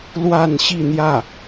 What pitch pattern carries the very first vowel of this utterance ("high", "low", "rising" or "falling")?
falling